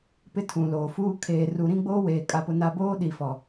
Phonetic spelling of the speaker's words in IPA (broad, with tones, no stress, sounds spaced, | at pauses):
p ɪ˦ tʰ ũ˨ l oː˨ f uː˦ kʰ eː˨ r u˨ ɾ ĩ˦ ɡ͡b oː˦ w eː˨ kʼ a˦ p ʊ˦ n a˦ b oː˦ ɗ i˨ f ɔ˨